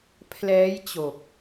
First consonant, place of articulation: labial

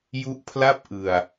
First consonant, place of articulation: palatal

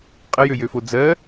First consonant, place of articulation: uvular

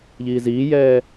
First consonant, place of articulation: palatal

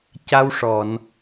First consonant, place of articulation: palatal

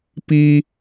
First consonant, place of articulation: labial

